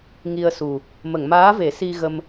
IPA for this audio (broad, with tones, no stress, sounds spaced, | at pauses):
ŋ i˧ ə̯ s u˨˩ | m ə˨˩˨ ŋ m aː˧˥ v e˨˩˦ s i˧ ɣ ə˧ m